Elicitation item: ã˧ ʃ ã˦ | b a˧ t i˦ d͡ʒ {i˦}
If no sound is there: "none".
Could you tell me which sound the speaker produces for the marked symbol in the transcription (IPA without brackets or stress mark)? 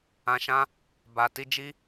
i˦